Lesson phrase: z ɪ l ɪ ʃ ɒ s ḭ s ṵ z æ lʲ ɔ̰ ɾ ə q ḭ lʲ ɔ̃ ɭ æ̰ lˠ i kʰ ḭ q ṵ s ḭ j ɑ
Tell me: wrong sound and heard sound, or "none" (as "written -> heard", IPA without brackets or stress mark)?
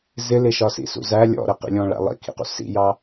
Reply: i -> ḭ